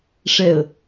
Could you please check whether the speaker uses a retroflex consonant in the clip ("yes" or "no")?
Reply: yes